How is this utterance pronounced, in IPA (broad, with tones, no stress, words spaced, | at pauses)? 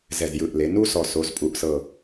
zɛ˨˩zjɯ˨˩ʔle˩˧ nu˦sɔ˨˩so˩˧zpʼu˩˧ʔ sɤ˨˩